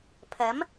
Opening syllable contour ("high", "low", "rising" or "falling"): rising